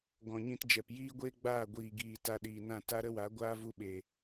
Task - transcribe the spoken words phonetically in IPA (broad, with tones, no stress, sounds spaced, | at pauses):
ɡ ɔ̃˨ ɲ ĩ˧ t d͡ʒ ɛ˨ p j iː˦ ɡʷ eː˦ ɡ͡b aː˦˨ ɡʷ iː˨ ɡ iː˨ t a˧ ɗ iː˨ n ã˦˨ t a˦ ɾ ə˦ w a˨˦ ɡʷ aː˦ v u˧ ɓ e˨